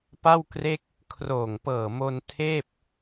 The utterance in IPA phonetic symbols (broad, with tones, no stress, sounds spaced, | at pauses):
p a˥˩ w k r e˥˩ k̚ | kʰ r oː˨˩ ŋ p ɤː˨˩ m o˧ n tʰ eː˥˩ p̚